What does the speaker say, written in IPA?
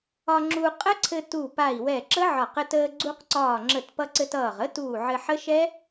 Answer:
ɒ˧ ŋ͡ǁ u˧ qʼ ə˦˥ ǀʰ ɘ˧ t u˧˩ p a˧˩ i̯ w ɛ˧˩ ǁ ə˦˥ ʕ ɒ˧˩ q ɘ˧ t əː˧ ɡ͡ǀ u˧ q ǀ ɒː˧˩ ŋ͡ǁ ə˧˩ t p ʌ˧ ǀ ɘ˧ t ʌː˧˩ ʁ ə˦˥ t uː˧˩ ʕ ɘ˧ ħ ə˦˥ ʃ ɛ˦˥

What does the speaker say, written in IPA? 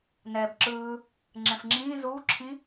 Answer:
n ɛː b ǁ ɯː | ŋ͡ǁ ɛ̃ f ŋ͡ǁ ĩː z uː ǁʰ ĩ

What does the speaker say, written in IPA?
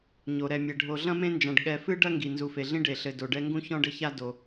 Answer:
ɲ o˩ ɾ ɛ˨ mʲ ɛ˩ ɖʱ o˨ ɮ ɐ̃˥ m ẽ˦ n d͡ʒ ã˨ ɖ ɠ ɛ˨ f ɨ˦ ɖ ɐ˥ ŋ ɡ i˩ n z u˨ f e˨ ɮ ĩ˥ ɖ e˩ ɬ ɘ˨ d o˩ ɖ ɛ˦ ŋ ɡ ũ˥ ç ɔ̃˥ ɖ ɘ˥ ç a˥ d o˩

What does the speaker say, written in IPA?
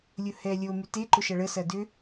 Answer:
lʲ ʊ h ɛ lʲ o m y t e ǃ ʊ ʃ ɐ ɭ ə s ɐ d ʏ

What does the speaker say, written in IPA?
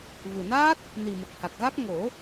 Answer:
v ɨ˨˩ n aː˦˥ t̚ | n i˨˩ m ə˨˩ k̚ h a˨˩ k̚ ɣ a˦˥ k̚ ŋ o˨˩˦

